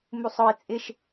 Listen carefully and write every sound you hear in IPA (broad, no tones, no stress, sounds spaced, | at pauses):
m u sˤ ɔ i̯ t͡sʼ ɪ ʃ